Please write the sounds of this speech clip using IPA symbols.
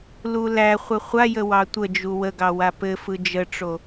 lulæχʷɘ χʷajə wɑtʷəd͡ʒu wəɡɑ wapɘfɯ d͡ʒəʈ͡ʂo

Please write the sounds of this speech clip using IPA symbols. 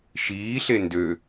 ʃiːɬe ndø

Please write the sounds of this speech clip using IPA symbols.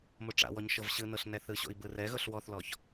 moʈ͡ʂa̰wɔɲ ʃɤvɕɯnɤɬ nɛθɯɕo̰i̯ bɯrɛɣɤɬ wɔθlɔç

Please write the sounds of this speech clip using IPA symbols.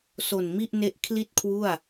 so˨˩nmi˥˩ʔne˦˥ʔ kʰli˥˩t̚kʰwu˥˩a̯

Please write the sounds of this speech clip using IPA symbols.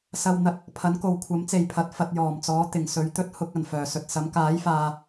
sɐ˧w n̪ɐ˨t̚ | pʰɐ˨˥nko˨w kʷʰɐ˨˥mt͡se˨jpʰɐ˨t̚ fɐ˧t̚jɔː˨˩mt͡sɔː˨˥ t̪ɪ˨˩ŋsɵ˨ɥt̪ɵ˥t̚ hʊ˧k̚ɐ˨˩n fœː˨˩sɵ˨t̚sɐ˨˥m kaː˨˥jfaː˨

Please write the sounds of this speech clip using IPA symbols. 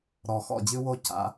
ɾɔ˨˩xɔ̰˥˩d͡ʑɨ˦wo˦ ca̰˨˩˦

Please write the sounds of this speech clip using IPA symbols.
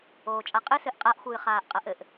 oːt͡ʃʼaqʼɘ sɘʔqʼaʔ xʷɨːχaːʔqʼɐʔɘʔ

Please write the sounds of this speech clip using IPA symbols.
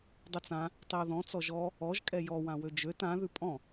dˤøt͡sã | tˤio̯ðɔ̃ t͡sɔʒɔ | ɔʒ kʼɛjɔ wãwød͡ʒøt ã ðʉpʼɔ̃

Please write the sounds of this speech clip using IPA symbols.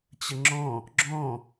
t͡ɕəŋ͡ǁɔ̃ | ɡ͡ǁɔ̃

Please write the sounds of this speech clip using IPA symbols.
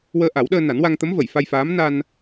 wəː˧ʔa˨˩˦wɗəː˧ na˨˩˦nwa˧ŋt̪ə˧˥m və˨˩˨jfa˧jfaː˧˥m na˧n

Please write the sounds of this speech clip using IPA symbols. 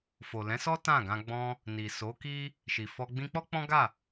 fo˨ lɛ̃˨˦sɔ˦ tã˦˨ ɡã˧ɡ͡bɔ̃˧ | ni˨so˨˦ki˦ | ʃi˨fɔ˧ ɡ͡bĩ˧k͡pɔ˦ k͡pɔ̃˦ɡa˦˨

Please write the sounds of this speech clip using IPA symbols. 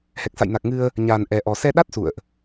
hɛ˨˩k̚sa̰˧˨jna˨˩k̚ ŋɨ˧ə̯ | ɲaː˨˩n ʔɛ˨˩ʔɔ˨˩ sɛ˧ɗa˦˥t̚ sṵ˧˨ə̯ʔ

